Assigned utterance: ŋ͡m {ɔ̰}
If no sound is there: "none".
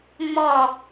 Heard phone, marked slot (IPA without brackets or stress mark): ɔ